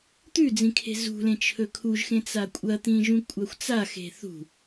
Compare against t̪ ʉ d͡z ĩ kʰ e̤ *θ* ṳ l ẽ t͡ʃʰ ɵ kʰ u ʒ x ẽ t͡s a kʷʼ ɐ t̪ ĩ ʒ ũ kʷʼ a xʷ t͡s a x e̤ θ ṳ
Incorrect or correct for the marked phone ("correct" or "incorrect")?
incorrect